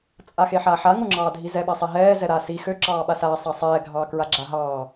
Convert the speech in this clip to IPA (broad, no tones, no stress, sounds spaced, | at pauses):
t͡sʼ a x e ħ aː ħ a ŋ o ŋ͡ǁ ɑː dʱ i z ɛ ɓ a sˤ ɛ ɦ ɛː z ɛ ɾ aː s i x ø ǁ ɑː ɓ a s aː sˤ ɑ sˤ ɛː ɡʱ ɑ k ɹ a ɡ͡ǁ a ɦ ɑː